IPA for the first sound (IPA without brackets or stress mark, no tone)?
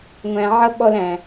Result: ŋʷ